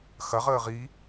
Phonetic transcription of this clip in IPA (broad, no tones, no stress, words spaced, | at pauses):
xɐʁəː ʁi